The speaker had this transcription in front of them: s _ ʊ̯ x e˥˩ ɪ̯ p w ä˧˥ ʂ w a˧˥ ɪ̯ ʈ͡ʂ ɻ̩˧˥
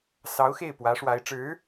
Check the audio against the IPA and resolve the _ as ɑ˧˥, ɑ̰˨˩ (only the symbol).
ɑ˧˥